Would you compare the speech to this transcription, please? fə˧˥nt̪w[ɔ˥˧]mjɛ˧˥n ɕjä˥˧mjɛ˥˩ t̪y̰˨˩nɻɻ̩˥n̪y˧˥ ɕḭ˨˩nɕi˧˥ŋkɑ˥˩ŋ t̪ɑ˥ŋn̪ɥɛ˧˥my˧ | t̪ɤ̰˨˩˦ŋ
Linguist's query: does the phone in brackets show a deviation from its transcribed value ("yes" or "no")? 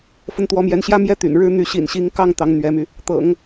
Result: yes